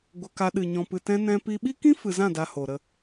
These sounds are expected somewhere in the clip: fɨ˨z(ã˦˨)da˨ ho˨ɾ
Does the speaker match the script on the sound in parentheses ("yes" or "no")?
yes